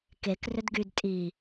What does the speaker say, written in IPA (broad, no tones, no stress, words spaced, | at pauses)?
kek rʏdɡyd tʼi